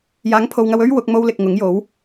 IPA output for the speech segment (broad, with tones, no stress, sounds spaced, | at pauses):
j aː˨˥ ŋ pʰ o˨ w ŋ ɐ˧ w ɵ˥ ɥ w ʊ˨˥ k̚ m o˥ w l ɪ˨ k̚ ŋ ʊ˨˥ ŋ j o˨˥ w